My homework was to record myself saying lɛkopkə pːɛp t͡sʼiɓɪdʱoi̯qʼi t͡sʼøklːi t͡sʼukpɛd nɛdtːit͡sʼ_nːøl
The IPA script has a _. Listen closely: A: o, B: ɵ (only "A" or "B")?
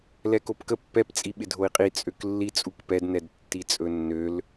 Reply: B